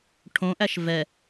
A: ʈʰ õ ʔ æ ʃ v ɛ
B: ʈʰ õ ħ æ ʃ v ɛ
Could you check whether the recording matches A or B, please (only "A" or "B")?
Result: A